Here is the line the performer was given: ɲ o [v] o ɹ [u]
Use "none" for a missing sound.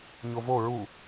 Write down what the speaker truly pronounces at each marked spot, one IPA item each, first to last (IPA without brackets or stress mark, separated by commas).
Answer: v, u